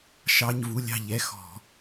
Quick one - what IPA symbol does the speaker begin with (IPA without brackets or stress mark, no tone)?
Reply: ʃ